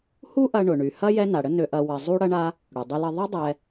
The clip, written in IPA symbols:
h u˥ ʔ ɐ˧ ɳ ʊ˩ ɳ y˩ h ɐ˥ j ɛ˥ n a˩ ɽ ə˥ n ø˧ ʔ ɐ˧ w ɐ˧ zˤ u˥ ɽ ɐ˥ ɳ a˥ | ɽ ʊ˩ dˤ ʏ˧ l ə˧ ðˤ ɐ˥ dˤ ɛ˧

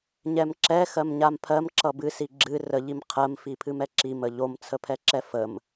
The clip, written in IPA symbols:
ɲ ɛ m ǁ ɛ x ɜ m ɲ a m pʰ ɜ m ǁ ʌ b ɨ s i ɡ͡ǁ ɨ r ə ʎ i m qʰ ɜ m f i pʰ ɨ m ɛ ǁ i m ə ʎ o m t͡sʰ ə pʰ ɛ ǁ ɛ f ə m

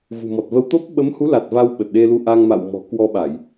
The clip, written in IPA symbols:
v ṳ˨˩ m ɔ˨˩ t̚ v ə˧ w t̪ o˦˥ p̚ ɓ ə˨˦ m h u˨˦ l a˨˩ t̚ v a˧ w ɓ ə˨˩ t̚ ɗ e˧ l u˧ ʔ a˧ ŋ m a̰˧˨ w m ɔ̤˨˩ k w ɔ˧ ɓ a˧˩˨ j

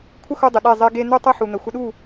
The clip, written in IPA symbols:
kʷʰ ə˦ x u˧ dˤ ɪ˨ ɗ e˦˨ zˤ e˦ ɡ e˧ n̪ u˦ tˤ ʌ˦ ħ u˨ n̪ ə˨ xʷ ə˧ ɗ u˦˨

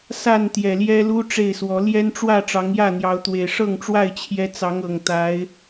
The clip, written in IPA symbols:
s a˥˨ n t̪ j ɛ˨˩ l j ɛ˦ l u˦ ʈ͡ʂ e˥˨ ɪ̯ s w ɔ˨˦ l j ɛ˦ n ʈ͡ʂ w ä˥˨ ʈ͡ʂ ɑ˨˦ ŋ j ä˥˨ n̪ j ɑ˨˦ ʊ̯ t̪ w e˨˩ ɪ̯ ʂ ɤ˥˨ ŋ ʈ͡ʂ w a˥˨ ɪ̯ t͡ɕʰ j ɛ˦ t͡s ɑ˨˦ ŋ ɤ˨˩ ŋ t̪ a˨˦ ɪ̯

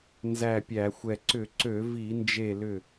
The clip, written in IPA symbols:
n z æ˧˩ pʲ æ˧˩˧ xʷ ɛ˧˩ ǀ ʏ˧˩˧ ǀ ø˧˩˧ v i˧˩˧ n d͡ʒ e˧˩ l ʏ˧˩

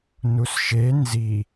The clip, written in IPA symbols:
n u s ʃ e n z i

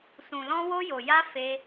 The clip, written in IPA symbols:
s ũ˨ l ɔ̃˧ w o˧ j o˨ j a˧ f e˧

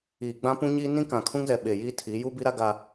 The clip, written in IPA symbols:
iː˨ ɡ͡b ã˦ p ũ˦ ɲ i˦ n ĩ˦ k ã˨ kʰ ũ˦ ŋ z ɛ˨ ɓ e˨ j iː˦ tʰ i˨˦ j u˦ b i˦ ɾ a˦ ɡ a˦

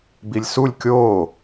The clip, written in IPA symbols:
b i lʲ s u lʲ kʲ oː

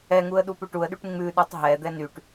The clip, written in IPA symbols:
ɛ ŋ u ə̯ ɗ u p ʉ ʈ u ə̯ ɗ y ʈ ŋ͡m ʉ ɗ u tˤ ɦ ɛ d̪ ɛ n y ʈ

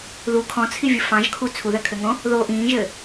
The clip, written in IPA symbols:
ð u kʰ ɔ̃ t͡sʰ i vʲ ə f ɑ̃ ʒ kʰ u t͡sʰ u ð ɜ kʰ ɘ ŋ õ | ð o ʔ ĩː ʒ ɘː

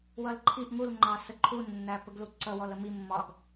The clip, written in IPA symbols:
w ʌ l ǃʰ i ʔ ŋ u l ŋ͡ǃ ɑ s ə ǃʰ u nː æ p ə ɡ l u ǀ ʌ w ɔ l ə m i mː ɒ ɡ

